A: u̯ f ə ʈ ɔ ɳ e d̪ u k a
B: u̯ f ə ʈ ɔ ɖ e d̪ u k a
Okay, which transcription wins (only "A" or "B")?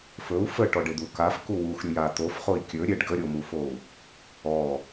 B